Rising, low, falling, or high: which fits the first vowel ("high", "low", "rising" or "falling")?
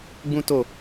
high